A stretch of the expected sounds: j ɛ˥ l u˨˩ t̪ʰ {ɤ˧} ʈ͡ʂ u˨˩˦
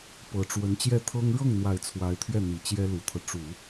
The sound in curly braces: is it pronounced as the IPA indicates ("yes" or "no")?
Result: no